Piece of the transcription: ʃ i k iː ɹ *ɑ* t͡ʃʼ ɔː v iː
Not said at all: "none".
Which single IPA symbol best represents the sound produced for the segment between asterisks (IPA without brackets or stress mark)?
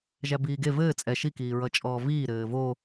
ʌ